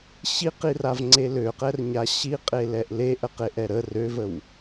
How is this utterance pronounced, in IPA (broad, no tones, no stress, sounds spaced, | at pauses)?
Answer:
ɕ i q i r a v ŋ͡ǀ e l ø q ɛ r ɲ a ɕ i qʼ e l ɛ ʔ l e ʔ ə q e ʔ ɛ ɾ ə r ø v ə w